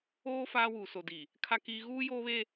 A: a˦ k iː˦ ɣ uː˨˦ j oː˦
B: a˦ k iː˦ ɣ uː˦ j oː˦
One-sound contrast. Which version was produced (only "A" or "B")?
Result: B